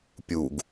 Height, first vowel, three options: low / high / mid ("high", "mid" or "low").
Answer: high